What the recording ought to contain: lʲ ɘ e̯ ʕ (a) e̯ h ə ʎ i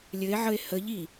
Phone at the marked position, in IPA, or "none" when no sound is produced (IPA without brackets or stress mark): ə